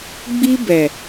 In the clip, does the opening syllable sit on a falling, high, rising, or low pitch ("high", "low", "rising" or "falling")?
high